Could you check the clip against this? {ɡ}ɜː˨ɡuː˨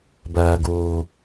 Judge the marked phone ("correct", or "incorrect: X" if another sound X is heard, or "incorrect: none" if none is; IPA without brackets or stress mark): incorrect: b